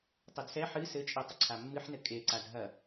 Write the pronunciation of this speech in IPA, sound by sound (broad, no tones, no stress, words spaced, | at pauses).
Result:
tˤodsɛ ħɨ sɘt͡ʃʼetˤɘ ǀʰamːɨħnɘ kʼeǀad ɦɐ